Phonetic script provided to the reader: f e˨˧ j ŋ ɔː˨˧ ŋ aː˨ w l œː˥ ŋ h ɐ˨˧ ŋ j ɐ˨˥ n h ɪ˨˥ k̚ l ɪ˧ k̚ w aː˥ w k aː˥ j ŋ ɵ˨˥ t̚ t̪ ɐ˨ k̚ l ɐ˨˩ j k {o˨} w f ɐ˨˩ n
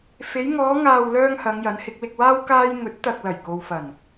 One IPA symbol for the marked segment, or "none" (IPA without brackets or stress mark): o˨